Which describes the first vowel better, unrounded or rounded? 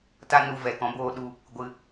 unrounded